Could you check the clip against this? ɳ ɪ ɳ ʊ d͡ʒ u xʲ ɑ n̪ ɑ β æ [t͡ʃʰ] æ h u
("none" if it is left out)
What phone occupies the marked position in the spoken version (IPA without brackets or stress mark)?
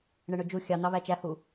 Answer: t͡ʃ